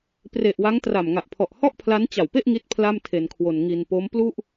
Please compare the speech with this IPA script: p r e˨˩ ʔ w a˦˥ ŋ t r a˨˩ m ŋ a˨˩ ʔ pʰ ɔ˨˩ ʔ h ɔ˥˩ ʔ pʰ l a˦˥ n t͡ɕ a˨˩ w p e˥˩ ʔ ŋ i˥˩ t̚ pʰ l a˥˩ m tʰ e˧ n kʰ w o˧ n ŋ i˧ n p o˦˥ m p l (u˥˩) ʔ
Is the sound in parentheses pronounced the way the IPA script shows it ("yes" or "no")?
yes